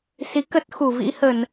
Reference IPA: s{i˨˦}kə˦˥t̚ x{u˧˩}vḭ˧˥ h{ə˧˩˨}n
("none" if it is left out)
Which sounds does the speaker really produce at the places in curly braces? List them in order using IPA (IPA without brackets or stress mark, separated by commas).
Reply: i˨˦, u˧˩, ə˧˩˨